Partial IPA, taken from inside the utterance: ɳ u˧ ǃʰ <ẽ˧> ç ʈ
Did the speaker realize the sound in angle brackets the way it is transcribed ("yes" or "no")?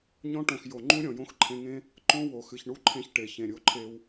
yes